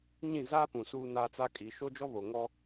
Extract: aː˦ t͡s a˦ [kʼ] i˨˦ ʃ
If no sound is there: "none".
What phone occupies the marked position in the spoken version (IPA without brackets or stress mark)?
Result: kʼ